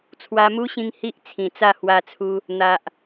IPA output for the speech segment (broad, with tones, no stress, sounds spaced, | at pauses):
t͡sʰ w a˧ m u˦ ɕ ĩ˧ ŋ h i˦ ʔ t͡sʰ ĩ˨˩ t͡s a˥˧ h w a˧ t͡sʰ u˧ | n̪ a˨ ʔ